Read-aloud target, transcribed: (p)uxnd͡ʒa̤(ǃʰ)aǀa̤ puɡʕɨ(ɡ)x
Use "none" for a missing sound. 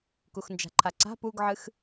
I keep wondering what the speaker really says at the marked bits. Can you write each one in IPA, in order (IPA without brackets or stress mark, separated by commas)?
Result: k, ǃʰ, none